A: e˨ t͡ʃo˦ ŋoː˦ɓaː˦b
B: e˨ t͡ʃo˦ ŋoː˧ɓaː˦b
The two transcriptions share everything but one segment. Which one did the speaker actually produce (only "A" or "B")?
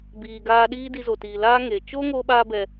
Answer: A